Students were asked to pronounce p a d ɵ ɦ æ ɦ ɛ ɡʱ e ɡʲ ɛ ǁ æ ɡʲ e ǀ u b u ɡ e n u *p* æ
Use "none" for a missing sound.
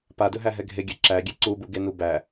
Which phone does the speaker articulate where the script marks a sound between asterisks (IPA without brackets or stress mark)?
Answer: b